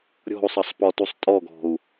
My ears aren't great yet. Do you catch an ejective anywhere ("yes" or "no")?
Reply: yes